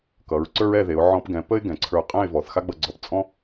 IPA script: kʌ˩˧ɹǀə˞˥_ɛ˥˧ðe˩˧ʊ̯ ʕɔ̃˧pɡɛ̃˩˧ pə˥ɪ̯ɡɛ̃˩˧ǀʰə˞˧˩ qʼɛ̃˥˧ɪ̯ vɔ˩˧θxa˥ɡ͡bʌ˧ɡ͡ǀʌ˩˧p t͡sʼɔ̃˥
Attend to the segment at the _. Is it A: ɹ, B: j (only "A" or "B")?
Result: A